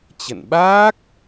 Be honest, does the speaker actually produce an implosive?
yes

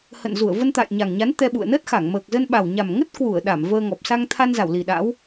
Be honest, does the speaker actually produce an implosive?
yes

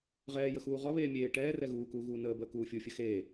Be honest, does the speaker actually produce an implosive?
no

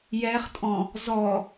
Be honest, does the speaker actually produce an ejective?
yes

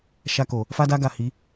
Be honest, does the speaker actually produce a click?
no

